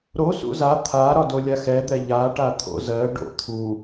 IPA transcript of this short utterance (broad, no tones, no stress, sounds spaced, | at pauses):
ɾ o s ṵ z a t̪ʰ a ɾ ɒ d o lʲ a x ɛ d̪ ɛ ʎ a ʈ a t̪ʰ o̰ z ɜ ɖ o̰ t̪ʰ u